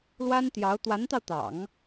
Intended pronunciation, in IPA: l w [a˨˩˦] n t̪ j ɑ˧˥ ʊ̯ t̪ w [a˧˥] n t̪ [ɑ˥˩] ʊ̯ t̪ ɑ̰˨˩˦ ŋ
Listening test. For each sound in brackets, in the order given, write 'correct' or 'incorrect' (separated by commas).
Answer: incorrect, correct, incorrect